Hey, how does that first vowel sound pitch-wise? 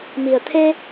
low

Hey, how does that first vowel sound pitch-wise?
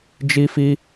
high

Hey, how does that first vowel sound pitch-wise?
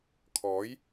rising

